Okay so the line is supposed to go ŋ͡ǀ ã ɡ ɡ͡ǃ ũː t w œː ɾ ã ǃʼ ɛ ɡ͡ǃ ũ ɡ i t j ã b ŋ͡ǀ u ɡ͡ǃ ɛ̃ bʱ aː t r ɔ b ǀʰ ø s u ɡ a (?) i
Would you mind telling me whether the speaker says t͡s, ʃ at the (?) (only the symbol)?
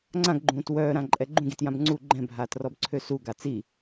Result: t͡s